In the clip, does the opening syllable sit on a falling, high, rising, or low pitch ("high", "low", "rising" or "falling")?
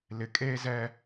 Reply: low